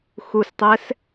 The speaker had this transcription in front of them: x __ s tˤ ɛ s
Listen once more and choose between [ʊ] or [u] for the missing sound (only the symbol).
u